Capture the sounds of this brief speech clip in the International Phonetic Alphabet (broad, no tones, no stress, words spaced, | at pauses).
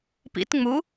pḭt ŋ͡mu